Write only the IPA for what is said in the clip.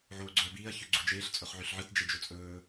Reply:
ʕ oː ɡ͡ǀ ɵ ɐ̯ b iː ɐ̯ ç ʉ ɡ͡ǀ o d͡ʒ eː ɬ t͡sʼ ɵ χ ʕ ʉ ɬ ʕ ɨ t d͡ʒ e d͡ʒ ɵ t͡sʼ ɵː

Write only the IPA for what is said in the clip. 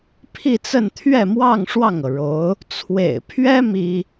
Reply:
pʰ i˥˧ t͡s ə˥˧ n t̪ʰ ɥ ɛ˥˧ m w ɑ˥˧ ŋ ʂ w ɑ˥˩ ŋ ɤ˩ ɻ o˧˥ ʊ̯ | t͡sʰ w ḛ˨˩ ɪ̯ pʰ ɥ ɛ˥ m i˥

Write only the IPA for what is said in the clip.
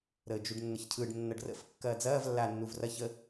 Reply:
ɾ əː d͡ʒ u ɖ nː ə ç cʰ ɯ ɖ nː ɐ ɖ r ə̰ f kː ɐː d͡z ɐː v lː aː nː u v r ɐ ç ə

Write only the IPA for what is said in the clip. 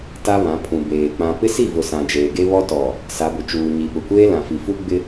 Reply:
t a˦ β ã˨˦ pʰ ũ˨ b eː˨ k͡p ã˨ p ɪ˦ s i˦˨ v ʊ˨ s ã˨ d͡ʒ eː˨ ɡ e˦ β ɔ˦ t ɔ˨ | s a˨˦ b ʊ˨ t͡ʃ uː˨ ɲ i˨ ɓ ʊ˨ kʷ eː˦ l ã˨ f i˨ f u˦ ɡ͡b ɪ˦

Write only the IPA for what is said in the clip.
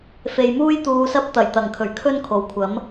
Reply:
f e˨ j m uː˥ j t̪ uː˧ s ɐ˥ p̚ t̪ ɐ˨˩ j t̪ ɐ˨˩ ŋ kʰ ɵ˨˩ ɥ kʰ ɵ˥ n kʰ o˨˩ w kʷʰ ɐ˨˥ m

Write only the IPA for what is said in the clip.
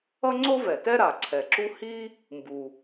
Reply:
ʌ˥ ŋ͡ǀ o˥ v ɛ˩ t ɛ˥ ɾ a˩ ǀʰ ɛ˩ ǁ u˥ h i˥ | m b u˩

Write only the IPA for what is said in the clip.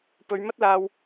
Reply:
p ɵ˨˧ ɥ m ɐ˥ t̚ l aː˧ w

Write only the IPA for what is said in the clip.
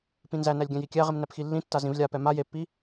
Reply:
p ĩ n z æ n æ lʲ ɡʲ æ̃ j i kʲ æ ʁ i m n æ p x i lː ĩ tː a z ĩ v lʲ a p ɛ m a j e pː i

